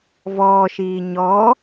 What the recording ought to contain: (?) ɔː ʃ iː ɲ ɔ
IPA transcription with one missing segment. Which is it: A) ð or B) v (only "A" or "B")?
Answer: B